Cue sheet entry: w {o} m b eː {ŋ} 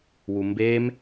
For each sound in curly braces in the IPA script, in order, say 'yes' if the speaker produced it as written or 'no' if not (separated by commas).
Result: no, no